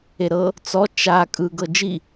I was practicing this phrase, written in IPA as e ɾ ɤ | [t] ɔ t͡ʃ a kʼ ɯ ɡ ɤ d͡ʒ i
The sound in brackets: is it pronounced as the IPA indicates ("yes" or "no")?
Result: no